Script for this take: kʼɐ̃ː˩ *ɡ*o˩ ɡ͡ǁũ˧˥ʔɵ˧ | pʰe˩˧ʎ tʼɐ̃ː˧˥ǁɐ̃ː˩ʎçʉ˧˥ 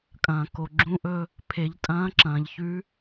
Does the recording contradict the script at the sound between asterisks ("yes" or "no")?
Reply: yes